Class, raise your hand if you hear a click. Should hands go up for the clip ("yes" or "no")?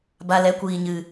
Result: no